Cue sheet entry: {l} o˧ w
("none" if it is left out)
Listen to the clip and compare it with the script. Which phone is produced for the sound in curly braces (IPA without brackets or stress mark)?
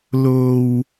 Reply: l